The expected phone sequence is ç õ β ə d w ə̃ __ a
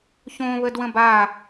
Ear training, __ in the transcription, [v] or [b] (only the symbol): b